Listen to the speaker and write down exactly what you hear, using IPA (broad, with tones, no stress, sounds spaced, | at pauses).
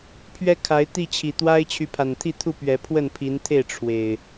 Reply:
pʰ ɥ ɛ˦ kʰ a˨˦ ɪ̯ t̪ i˥˨ t͡ɕʰ i˨˩ t̪ w a˦ ɪ̯ t͡ɕʰ y˨˦ pʰ a˨˩ n t̪ʰ i˥˨ t̪ʰ u˥˨ p ɥ ɛ˨˦ pʰ w ə˥˨ n pʰ i˨˦ n t̪ʰ e˥˨ ɪ̯ ʈ͡ʂʰ w e˨˩ ɪ̯